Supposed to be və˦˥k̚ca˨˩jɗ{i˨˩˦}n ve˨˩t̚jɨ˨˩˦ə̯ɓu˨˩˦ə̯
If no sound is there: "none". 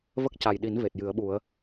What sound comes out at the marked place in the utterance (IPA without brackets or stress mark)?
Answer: i˨˩˦